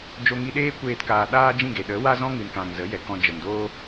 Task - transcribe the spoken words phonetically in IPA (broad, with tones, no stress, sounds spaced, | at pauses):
d͡ʒ o˧ ŋ i˧ ɗ eː˦ kʷ eː˧ t k aː˨ ɗ aː˦ d͡ʒ ĩ˦˨ ɡ e˨ ɗ ə˨˦ w a˦ z ɔ̃˦ ŋ ɨ˨ n k ã˨ ŋ z ə˨˦ j ɛ˨ k ɔ̃˧ d͡ʒ ə˨ m d oː˦